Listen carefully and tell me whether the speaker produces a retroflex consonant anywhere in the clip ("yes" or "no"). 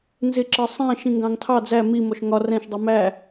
no